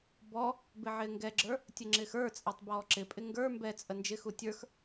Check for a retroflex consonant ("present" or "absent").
absent